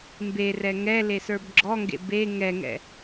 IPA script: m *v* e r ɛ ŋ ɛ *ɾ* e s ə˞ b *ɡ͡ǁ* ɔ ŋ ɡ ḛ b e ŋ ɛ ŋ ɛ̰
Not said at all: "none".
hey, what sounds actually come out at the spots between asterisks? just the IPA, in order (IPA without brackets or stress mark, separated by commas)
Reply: b, l, ɡ͡ǁ